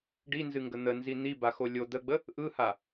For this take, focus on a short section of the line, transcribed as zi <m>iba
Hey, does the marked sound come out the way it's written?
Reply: no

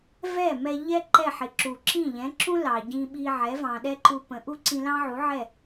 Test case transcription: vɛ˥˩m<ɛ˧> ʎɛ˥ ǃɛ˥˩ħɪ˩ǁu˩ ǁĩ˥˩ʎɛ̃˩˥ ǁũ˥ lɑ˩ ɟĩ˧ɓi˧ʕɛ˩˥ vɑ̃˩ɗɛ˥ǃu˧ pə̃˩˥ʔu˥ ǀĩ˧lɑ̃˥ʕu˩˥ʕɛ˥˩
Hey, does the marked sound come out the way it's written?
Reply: yes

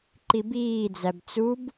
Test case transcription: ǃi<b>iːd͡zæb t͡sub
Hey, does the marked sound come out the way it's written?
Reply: yes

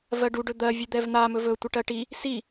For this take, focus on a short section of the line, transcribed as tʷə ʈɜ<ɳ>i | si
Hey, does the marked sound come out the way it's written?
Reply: no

